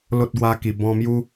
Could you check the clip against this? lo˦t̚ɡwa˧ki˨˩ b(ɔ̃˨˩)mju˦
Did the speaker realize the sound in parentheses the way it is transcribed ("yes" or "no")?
no